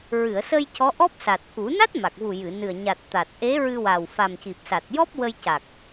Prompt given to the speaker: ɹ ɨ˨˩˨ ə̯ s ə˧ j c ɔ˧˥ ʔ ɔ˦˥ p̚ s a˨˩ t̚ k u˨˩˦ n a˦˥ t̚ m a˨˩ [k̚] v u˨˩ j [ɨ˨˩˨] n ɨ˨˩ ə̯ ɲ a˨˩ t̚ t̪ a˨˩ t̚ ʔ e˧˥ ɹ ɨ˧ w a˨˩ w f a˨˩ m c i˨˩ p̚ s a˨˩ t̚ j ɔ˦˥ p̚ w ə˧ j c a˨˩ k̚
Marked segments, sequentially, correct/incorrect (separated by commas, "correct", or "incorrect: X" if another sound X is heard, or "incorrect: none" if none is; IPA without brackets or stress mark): correct, correct